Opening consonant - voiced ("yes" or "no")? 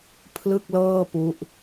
no